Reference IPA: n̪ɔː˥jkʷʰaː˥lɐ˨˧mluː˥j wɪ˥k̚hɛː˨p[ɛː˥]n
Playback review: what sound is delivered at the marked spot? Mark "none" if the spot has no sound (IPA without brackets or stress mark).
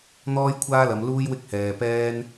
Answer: ɛː˥